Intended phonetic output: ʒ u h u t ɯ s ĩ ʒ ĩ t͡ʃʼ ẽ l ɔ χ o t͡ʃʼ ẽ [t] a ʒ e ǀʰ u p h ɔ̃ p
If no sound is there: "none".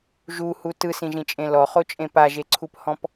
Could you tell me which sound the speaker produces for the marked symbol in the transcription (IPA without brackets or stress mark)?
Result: p